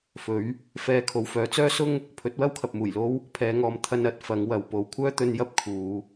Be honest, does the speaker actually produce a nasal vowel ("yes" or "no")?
no